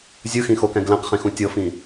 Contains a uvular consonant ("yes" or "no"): yes